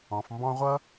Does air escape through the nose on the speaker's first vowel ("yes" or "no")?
yes